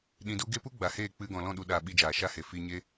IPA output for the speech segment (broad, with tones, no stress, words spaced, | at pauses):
ɗĩ˧du˦ ɡe˦pu˦ ɡ͡ba˨heː˦˨ k͡pɨ˦ ɡɔ̃˨ lɔ̃˦˨ɗu˨ɗaː˨ ɓi˧d͡ʒaː˨ʃa˦he˨ fi˧ ɲe˦